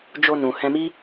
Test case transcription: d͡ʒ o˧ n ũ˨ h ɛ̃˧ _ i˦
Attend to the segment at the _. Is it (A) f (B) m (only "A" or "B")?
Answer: B